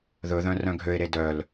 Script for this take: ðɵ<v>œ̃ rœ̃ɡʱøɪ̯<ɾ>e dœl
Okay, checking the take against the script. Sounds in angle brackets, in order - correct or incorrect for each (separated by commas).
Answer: incorrect, correct